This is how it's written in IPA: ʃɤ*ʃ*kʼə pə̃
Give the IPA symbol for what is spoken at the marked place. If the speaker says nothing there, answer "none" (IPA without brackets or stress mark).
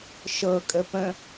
none